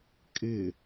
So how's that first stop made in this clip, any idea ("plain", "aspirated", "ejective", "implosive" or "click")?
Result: ejective